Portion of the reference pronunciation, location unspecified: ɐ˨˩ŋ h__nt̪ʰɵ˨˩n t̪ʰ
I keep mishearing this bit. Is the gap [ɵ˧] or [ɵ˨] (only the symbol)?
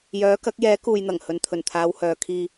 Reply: ɵ˨